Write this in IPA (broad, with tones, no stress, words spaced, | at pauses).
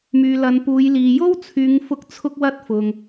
myː˨lɐ˨˧npuː˨˧jliː˨ jo˥wt͡sʰyː˨˧ŋfʊ˧k̚ t͡sʰʊ˧k̚wɐ˧t̚ fʊ˨ŋ